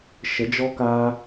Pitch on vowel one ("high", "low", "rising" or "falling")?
rising